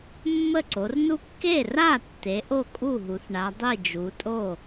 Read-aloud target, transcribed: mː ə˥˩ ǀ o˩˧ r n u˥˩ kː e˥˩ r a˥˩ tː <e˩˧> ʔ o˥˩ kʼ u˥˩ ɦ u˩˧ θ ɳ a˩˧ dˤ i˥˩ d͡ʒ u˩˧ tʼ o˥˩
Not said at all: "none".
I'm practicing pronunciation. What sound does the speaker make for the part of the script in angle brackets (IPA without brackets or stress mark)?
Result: e˩˧